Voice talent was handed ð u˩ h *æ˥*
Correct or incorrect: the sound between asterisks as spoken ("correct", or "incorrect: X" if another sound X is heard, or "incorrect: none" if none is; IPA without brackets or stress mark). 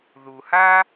incorrect: a˥